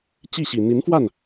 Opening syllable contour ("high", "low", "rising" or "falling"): falling